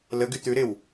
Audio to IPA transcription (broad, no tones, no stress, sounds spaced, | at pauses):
l ə ɡ y t̪ ʉ ɾ ɪ w